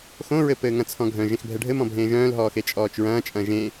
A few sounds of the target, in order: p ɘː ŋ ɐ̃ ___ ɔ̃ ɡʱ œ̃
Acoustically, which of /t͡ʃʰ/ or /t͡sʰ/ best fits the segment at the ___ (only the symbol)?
t͡sʰ